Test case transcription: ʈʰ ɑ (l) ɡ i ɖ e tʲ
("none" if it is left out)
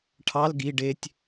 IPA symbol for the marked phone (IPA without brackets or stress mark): l